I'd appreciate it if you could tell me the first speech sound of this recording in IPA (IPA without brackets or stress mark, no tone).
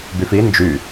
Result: b